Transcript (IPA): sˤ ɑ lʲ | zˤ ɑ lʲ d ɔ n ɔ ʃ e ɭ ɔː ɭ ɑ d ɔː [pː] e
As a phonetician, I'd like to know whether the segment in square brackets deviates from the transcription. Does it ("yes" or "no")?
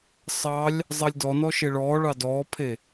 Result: yes